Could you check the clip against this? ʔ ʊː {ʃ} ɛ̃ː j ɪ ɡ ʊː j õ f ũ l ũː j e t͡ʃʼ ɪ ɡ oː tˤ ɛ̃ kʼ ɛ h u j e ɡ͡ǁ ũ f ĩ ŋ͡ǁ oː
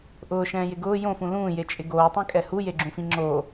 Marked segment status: correct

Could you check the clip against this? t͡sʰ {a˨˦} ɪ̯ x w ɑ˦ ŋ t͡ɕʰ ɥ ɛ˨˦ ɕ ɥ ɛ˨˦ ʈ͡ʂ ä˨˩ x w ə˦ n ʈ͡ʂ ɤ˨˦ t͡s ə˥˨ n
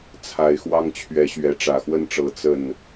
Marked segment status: correct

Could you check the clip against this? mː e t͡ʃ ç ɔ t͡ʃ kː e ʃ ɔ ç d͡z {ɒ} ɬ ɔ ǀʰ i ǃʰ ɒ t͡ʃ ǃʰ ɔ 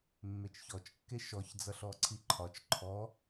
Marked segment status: incorrect: ʌ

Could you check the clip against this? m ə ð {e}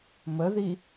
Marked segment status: incorrect: i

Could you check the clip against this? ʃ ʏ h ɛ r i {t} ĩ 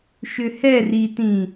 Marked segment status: correct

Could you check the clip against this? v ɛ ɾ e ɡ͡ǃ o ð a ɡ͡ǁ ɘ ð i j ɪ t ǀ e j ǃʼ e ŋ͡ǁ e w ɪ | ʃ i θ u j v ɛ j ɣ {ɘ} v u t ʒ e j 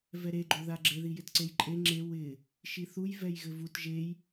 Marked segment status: correct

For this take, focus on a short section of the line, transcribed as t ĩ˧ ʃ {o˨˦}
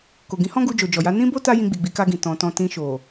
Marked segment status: incorrect: o˨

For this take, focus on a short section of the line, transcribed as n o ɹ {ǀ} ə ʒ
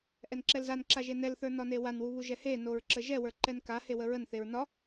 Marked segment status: incorrect: ǁ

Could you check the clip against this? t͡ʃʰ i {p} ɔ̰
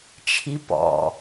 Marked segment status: correct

